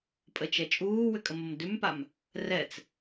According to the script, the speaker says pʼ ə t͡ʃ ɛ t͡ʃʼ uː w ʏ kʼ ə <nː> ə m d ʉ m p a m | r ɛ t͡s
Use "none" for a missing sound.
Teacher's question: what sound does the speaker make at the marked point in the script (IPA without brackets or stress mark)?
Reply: m